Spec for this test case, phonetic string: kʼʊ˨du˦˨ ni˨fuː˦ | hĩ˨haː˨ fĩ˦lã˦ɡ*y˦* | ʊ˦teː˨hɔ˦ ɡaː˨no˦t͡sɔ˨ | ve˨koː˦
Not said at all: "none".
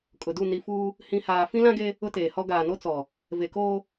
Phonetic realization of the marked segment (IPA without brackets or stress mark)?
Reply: e˦